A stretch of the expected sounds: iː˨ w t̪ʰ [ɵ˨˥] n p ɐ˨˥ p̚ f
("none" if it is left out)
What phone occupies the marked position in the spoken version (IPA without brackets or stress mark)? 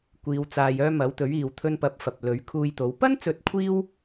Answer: ɵ˧